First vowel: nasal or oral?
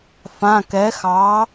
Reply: nasal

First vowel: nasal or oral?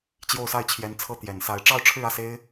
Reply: oral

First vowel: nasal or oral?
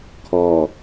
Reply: oral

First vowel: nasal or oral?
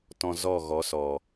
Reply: nasal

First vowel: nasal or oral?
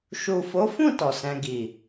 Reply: oral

